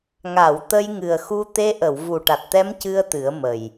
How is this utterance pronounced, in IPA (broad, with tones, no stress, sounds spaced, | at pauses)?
ŋ a˨˩˨ w t̪ ə˧ j ŋ ɨ˨˩ ə̯ x u˧ t̪ e˧ ʔ ə˨˩˨ w v u˨˩ ʈ a˨˩ t̚ t̪ ɛ˧˥ m c ɨ˧ ə̯ t̪ ɨ˨˩˦ ə̯ m ə˨˩ j